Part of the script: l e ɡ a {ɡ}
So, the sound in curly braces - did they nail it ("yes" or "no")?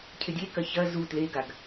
yes